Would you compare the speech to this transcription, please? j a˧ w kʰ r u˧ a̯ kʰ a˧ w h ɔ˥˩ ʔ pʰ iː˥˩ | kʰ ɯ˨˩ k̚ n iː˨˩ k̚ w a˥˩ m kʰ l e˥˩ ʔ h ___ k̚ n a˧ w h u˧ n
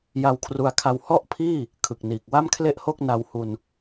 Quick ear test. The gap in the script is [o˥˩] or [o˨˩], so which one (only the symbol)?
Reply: o˥˩